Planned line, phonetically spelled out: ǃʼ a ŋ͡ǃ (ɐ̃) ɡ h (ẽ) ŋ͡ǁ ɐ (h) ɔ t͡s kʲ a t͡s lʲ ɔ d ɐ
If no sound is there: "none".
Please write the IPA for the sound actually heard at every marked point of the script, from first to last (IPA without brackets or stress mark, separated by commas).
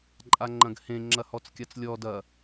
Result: ɐ̃, ẽ, h